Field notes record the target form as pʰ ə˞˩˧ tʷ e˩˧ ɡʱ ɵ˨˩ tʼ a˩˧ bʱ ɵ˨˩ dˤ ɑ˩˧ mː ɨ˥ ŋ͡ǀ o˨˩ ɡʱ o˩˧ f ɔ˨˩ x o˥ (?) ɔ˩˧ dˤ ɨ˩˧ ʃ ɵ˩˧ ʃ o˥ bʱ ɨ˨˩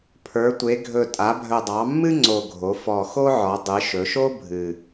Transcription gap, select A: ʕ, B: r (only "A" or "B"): A